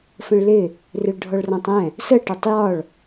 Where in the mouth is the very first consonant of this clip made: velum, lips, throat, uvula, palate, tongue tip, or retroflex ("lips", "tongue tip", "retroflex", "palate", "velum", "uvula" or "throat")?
lips